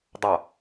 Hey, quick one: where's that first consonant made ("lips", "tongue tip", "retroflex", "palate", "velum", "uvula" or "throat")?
tongue tip